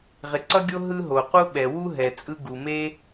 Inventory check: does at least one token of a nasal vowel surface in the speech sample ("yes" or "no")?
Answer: no